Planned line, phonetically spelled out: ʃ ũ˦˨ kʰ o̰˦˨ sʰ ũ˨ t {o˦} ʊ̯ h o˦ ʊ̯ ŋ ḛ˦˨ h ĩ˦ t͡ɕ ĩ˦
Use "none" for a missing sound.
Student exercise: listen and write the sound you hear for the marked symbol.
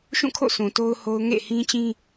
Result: o˦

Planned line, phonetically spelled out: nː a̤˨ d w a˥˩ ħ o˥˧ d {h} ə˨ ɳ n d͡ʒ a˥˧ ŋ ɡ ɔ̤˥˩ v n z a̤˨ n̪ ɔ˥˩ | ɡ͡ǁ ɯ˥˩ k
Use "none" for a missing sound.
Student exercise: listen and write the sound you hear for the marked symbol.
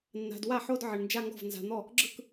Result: ʕ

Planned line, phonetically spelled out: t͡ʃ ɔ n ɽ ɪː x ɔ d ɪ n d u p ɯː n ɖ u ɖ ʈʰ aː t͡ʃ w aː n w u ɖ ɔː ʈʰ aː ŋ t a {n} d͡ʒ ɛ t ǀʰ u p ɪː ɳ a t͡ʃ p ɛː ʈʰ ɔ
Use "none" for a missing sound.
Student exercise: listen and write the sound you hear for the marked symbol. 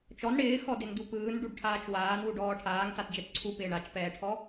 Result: t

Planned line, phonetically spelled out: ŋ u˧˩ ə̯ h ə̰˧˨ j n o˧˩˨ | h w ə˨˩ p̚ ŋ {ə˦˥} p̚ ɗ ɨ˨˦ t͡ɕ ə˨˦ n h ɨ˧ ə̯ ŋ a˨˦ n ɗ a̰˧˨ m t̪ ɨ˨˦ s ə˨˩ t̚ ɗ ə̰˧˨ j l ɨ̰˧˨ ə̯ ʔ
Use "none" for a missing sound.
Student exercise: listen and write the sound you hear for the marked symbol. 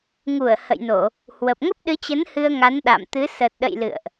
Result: ə˦˥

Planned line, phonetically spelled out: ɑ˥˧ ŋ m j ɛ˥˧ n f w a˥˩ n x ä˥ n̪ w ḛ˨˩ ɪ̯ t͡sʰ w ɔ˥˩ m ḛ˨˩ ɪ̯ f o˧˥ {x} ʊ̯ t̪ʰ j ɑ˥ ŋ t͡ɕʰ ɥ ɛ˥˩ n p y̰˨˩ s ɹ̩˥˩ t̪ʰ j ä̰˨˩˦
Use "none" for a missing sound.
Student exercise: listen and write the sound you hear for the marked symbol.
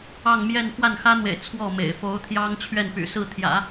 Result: none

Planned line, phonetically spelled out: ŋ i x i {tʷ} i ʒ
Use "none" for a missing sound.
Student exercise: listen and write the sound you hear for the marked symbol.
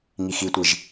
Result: tʷ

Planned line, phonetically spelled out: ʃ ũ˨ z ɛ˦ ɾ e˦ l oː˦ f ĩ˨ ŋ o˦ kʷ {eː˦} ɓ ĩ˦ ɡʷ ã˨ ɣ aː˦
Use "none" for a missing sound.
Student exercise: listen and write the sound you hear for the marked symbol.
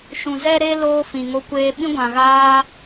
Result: eː˦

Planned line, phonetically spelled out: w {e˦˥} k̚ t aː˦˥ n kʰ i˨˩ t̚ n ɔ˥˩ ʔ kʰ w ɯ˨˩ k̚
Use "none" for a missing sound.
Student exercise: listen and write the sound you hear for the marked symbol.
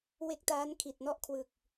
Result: e˦˥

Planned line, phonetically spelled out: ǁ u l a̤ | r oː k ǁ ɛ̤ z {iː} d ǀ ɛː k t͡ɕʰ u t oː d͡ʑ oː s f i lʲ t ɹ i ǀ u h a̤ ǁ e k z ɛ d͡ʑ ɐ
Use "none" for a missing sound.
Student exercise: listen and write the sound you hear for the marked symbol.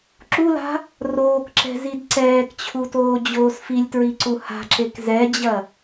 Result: i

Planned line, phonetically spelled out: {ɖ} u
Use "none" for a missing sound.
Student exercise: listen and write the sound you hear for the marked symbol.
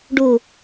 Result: ɖ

